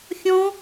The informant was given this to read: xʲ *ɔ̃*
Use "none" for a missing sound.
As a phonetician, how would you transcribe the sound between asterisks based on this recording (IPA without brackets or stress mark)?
ɔ̃